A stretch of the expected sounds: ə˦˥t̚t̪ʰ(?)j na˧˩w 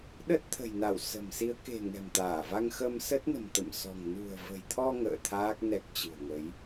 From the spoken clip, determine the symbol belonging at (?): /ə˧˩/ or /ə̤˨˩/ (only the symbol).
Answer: ə̤˨˩